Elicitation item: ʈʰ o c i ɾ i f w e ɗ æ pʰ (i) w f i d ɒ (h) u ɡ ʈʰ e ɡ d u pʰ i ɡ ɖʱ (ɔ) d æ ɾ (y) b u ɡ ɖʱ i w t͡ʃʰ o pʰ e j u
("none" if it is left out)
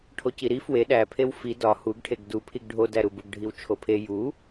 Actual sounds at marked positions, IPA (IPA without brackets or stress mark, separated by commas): e, h, o, u